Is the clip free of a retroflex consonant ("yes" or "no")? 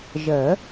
yes